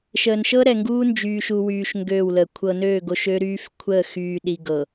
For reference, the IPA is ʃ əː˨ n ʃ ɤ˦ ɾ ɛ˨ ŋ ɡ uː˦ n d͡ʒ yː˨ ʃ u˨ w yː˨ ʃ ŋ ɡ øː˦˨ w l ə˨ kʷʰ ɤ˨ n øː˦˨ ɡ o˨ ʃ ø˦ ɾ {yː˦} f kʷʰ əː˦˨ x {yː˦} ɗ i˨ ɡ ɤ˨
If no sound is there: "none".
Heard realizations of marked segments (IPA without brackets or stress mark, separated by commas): yː˦, yː˨